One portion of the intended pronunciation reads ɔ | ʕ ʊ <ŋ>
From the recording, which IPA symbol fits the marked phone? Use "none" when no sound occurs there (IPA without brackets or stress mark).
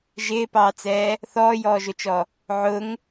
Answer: ŋ